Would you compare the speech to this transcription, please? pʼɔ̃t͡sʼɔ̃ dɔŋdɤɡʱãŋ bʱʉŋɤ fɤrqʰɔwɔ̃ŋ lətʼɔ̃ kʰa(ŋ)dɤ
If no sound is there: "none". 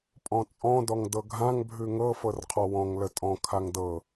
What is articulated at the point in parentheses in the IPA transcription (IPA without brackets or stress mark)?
ŋ